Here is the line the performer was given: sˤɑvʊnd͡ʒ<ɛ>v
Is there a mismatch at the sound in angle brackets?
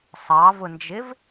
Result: yes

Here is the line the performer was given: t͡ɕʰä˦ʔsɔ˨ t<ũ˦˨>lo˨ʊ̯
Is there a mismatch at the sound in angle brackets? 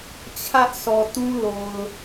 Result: yes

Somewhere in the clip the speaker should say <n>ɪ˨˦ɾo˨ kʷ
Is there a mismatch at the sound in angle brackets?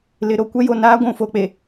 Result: yes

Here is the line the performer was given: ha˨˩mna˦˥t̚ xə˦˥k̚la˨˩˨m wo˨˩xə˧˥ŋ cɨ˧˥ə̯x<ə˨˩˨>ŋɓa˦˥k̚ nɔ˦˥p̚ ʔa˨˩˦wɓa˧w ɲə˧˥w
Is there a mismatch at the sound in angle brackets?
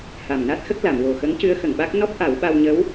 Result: no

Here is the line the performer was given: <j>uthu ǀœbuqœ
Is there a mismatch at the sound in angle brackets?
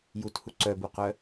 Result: no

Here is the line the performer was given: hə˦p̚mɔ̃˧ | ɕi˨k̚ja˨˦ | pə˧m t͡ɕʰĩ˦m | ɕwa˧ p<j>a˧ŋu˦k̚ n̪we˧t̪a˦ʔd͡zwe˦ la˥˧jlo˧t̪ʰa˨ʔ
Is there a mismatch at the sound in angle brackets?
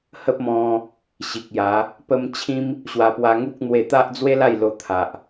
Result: yes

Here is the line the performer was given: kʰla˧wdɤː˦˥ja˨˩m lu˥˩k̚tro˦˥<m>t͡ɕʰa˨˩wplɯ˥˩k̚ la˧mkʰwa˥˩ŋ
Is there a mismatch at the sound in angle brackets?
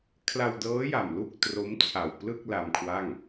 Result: no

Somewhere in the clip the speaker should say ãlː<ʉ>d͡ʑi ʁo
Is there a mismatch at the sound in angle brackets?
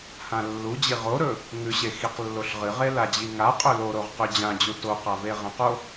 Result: yes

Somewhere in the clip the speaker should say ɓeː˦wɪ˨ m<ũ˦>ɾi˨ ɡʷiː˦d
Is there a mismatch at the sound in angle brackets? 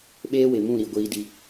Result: yes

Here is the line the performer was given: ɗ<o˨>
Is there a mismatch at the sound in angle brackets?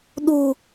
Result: yes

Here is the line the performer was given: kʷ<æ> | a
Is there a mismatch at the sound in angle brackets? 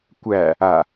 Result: no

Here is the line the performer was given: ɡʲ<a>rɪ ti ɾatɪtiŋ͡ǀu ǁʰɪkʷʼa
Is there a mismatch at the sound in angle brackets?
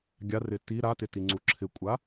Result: no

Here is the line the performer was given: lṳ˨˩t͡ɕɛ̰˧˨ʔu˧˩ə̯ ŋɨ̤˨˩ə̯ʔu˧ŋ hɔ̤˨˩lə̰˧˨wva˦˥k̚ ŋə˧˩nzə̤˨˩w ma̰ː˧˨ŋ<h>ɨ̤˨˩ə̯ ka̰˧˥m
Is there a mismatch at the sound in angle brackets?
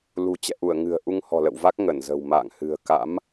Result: no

